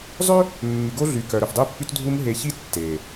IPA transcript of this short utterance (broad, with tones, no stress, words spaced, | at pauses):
zˤø˦ | mːy˨ɡo˦ɮy˨ kœ˨ɾɵ˨fdˤø˦pːy˦t dʱu˦m ɦe˨çi˦ tːe˨